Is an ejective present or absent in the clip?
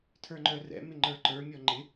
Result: absent